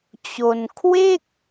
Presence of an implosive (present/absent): absent